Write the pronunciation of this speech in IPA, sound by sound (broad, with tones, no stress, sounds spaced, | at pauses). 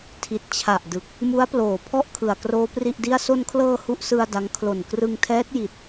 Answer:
tʰ i˨˩ t̚ t͡ɕʰ a˨˩ ʔ d ɯ˨˩ k̚ | m u˦˥ a̯ p l oː˨˩ pʰ ɔ˥˩ ʔ kʰ ɯ˨˩ a̯ k r oː˦˥ p r i˥˩ ʔ d i˥˩ a̯ s o˧ n kʰ l ɤː˧ h u˦˥ ʔ s ɯ˧ a̯ d a˦˥ ŋ kʰ l o˨˩ n k r ɯ˧ ŋ tʰ ɛː˦˥ t̚ j i˨˩ t̚